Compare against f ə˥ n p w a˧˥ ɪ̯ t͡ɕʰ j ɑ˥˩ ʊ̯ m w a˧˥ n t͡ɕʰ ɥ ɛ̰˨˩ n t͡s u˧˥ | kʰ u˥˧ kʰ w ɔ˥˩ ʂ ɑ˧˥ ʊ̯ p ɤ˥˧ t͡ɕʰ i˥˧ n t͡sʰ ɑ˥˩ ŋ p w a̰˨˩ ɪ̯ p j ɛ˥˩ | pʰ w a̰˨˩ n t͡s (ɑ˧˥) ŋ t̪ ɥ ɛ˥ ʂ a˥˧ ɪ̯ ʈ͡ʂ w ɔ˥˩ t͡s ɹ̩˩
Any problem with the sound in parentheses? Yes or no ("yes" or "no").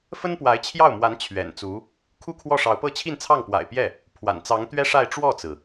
no